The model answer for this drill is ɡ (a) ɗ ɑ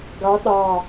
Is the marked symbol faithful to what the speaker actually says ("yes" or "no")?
no